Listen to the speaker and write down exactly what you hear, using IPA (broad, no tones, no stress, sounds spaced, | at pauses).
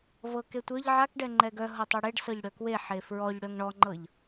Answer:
v ɤ k e tʷ œ ʎ ʕ a k ɖ ɛ ŋ͡ǃ ɛ ɡ œ ɦ ɤ tˤ œ ɽ e ɖ s ɤ ʎ ɽ œ k w e ħ e f ɹ ɔ ʎ ɽ œ ŋ ɳ ɔ ŋ͡ǃ ɤ ʎ